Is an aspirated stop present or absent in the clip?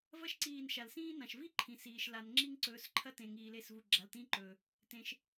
present